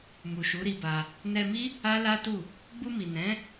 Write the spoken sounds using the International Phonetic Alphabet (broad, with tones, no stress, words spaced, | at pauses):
mu˨ʃu˨˦ɾi˧ba˧ | nɛ˧mi˦ | a˦la˦tu˦˨ | ɡ͡bu˧mi˨ nɛ̃˨˦